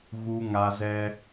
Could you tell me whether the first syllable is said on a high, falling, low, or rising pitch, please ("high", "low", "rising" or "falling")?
high